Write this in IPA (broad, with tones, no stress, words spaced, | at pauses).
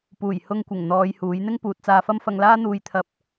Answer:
puː˨˩jhʊ˧ŋkʷɪ˨˩ŋ n̪ɔː˨˧jhuː˨˥j n̪ɪ˥ŋpuː˨t̚t͡saː˧fɐ˥m fɐ˧ŋlaː˥n̪uː˧j t̪ʰɐ˧p̚